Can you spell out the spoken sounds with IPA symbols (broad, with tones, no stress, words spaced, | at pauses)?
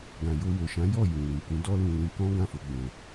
ɡã˨jo˧wo˨ʃã˨˦ jɔ˦˨jũ˨ wĩ˨kũ˨˦ dɔ˦lũ˧lĩ˧kɔ̃˦ ɡã˦˨fo˨˦ɡ͡bɛ̃˧